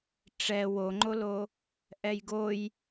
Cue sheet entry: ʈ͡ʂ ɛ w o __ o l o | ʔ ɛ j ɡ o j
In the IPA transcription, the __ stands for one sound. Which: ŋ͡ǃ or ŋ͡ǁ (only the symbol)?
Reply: ŋ͡ǃ